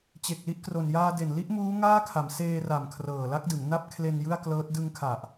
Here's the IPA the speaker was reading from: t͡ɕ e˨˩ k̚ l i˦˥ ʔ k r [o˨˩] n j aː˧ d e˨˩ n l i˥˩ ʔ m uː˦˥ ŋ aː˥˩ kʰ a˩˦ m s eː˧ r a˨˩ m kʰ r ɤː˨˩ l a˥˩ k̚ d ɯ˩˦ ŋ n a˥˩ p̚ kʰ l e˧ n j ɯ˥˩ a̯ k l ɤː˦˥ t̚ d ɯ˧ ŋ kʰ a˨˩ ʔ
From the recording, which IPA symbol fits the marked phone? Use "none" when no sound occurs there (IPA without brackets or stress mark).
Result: o˨˩